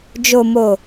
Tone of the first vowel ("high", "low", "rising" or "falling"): low